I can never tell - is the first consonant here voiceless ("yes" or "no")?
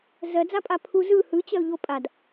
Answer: no